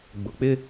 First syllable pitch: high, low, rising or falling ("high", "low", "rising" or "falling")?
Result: low